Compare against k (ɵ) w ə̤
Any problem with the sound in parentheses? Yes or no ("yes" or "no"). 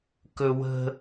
no